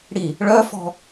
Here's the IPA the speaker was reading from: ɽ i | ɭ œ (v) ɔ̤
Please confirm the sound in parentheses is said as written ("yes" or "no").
no